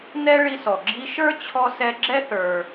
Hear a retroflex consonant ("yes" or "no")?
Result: yes